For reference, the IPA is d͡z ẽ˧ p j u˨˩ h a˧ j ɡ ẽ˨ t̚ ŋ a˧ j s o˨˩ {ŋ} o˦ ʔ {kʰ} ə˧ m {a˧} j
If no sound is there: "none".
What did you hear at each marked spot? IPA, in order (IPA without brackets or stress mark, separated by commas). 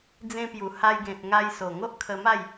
ŋ, kʰ, a˥˧